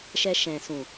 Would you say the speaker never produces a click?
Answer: yes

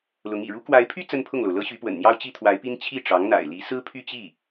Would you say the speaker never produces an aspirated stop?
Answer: no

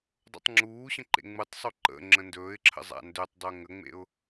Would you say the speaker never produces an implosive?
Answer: yes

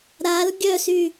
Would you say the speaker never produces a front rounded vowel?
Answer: no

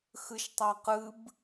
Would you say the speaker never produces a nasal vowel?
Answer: yes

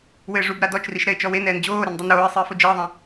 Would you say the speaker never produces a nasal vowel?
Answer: no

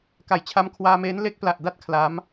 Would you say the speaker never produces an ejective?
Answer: yes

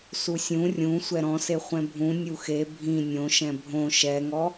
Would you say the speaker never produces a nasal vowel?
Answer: no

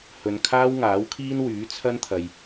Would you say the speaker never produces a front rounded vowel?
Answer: no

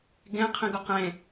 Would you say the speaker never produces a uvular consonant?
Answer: no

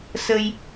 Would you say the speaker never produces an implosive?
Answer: yes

